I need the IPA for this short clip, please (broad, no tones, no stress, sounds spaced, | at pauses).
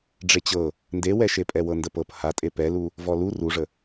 ɖ͡ʐ e t͡ɕ ɤ | n d e w ɛ ʃ e pʼ ɛ w ɤ n d ə p ɤ p h a tʼ e p ɛ l u | v ɔ l u r u ʐ ə